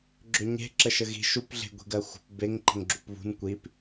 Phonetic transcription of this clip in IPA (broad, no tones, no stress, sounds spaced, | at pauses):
ɡ͡ǁ ʏ ɲ e̤ ǁ ə ʃ ə ɣ i̤ ʃ u p ɮ e̤ ɡʷ i̤ ɡ ɜ xʷ ə̤ p b e ŋ ǃ ə̤ ŋ ɡ͡ǁ u p β ṳ n kʷ i p